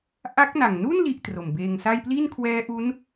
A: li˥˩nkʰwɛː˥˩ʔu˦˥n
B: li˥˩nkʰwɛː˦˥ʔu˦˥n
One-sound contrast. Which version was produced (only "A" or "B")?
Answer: B